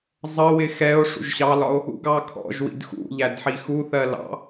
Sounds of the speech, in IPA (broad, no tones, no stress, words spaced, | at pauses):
zˤəwɪ xɛo̯ ʂṵʒɕɑlɒo̯ | ṵɡɑkʰɔ̰ʒwḭd xṵʎæd ħixuθɜ lɑ̰